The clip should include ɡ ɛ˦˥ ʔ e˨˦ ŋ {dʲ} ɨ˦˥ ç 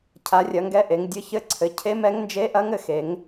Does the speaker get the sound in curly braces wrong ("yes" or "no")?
no